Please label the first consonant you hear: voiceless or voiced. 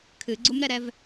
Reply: voiceless